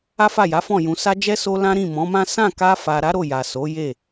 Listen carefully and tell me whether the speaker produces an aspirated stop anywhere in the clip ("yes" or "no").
no